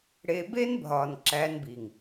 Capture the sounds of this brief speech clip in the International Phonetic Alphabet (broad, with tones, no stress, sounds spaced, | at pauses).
ɽ eː˧ b eː˦ n bʱ ɒː˨ n ǁ æː˧ n b iː˨ ŋ